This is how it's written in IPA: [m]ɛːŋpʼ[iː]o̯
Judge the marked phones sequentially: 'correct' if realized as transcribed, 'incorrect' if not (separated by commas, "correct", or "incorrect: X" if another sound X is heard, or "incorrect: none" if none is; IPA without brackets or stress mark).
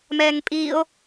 correct, correct